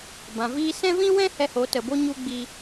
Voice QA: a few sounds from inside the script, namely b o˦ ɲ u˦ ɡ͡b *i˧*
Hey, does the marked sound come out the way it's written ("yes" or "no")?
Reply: yes